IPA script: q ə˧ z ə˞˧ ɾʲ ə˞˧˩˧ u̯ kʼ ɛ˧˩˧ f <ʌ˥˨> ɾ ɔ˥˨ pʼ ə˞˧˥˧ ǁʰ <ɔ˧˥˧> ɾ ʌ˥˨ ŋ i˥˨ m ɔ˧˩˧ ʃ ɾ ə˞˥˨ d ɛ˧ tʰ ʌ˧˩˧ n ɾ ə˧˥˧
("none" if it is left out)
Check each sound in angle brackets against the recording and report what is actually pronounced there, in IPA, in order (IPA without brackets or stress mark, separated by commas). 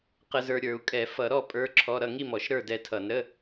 ʌ˧˩˧, ɔ˧˥˧